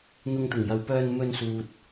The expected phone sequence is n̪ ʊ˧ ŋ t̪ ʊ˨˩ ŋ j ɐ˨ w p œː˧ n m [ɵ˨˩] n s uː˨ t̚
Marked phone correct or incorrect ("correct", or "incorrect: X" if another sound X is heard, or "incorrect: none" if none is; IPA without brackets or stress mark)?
incorrect: ɵ˧